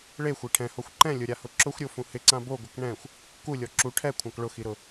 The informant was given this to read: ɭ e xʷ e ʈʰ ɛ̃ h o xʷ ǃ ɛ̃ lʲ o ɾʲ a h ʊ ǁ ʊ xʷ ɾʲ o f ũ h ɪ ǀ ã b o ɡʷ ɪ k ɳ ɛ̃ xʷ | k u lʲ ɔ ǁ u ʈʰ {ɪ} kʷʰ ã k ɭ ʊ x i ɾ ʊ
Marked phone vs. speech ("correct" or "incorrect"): incorrect